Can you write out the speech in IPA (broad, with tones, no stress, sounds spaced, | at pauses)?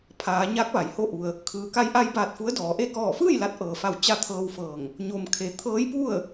pʰ aː˩˧ ɲ a˧˥ k̚ ʋ a˩ j h o˥˨ ʔ u˧ ə̯ | kʰ ɯː˩ k a˧ j ʔ a˧ j b aː˧˩ t̚ f u˧˥ ə̯ d ɔː˩˧ ʔ e˥˨ k ɔː˧˩ f ɯː˥˨ j l a˧˥ t̚ ʔ ɤː˩ f a˧˩ w t͡ɕ a˧ t̪ʰ ɤː˧ w f ɤː˧˩ ŋ | ɲ o˩ m kʰ e˩ t̪ʰ ɤː˧˥ j p u˥˨ ə̯